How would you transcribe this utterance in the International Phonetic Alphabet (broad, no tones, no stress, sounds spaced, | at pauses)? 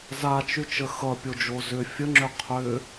z a t͡ʃ y t͡ʃ ə x ʌ pʲ o d͡ʒ o z ʏ fʲ ə ŋ͡ǁ ʏ qʰ ʏ